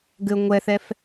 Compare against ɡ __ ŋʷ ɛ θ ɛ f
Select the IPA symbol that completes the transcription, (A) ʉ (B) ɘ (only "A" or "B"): B